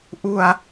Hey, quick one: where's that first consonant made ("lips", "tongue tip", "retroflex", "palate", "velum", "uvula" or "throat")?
throat